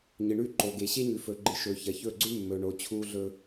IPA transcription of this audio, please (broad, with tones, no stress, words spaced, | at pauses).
ɲɨ˨ɳʉ˦˨ǃo˨ ɡe˨ɕe˦ɲʉ˨ fɵ˨ ɡ͡ǃɨ˦ ʃɵ˨çɐ˨çɵ˦˨ɡ͡ǀʉ˦ mːɵ˨ɳo˨ t͡ɕʰu˦ɮɵ˦